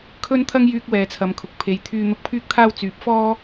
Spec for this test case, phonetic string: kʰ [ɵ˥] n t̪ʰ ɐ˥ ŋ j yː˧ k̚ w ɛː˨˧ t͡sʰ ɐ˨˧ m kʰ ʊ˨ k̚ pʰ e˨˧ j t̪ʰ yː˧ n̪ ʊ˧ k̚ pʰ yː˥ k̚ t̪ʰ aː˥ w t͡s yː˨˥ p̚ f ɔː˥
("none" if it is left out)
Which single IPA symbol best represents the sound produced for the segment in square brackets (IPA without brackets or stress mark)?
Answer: ɵ˥